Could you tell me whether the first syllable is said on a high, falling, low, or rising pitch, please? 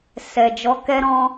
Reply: low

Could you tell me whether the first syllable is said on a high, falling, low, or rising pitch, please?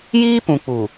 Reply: high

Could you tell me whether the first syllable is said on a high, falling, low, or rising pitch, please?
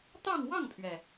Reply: falling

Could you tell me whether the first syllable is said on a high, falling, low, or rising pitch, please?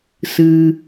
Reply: low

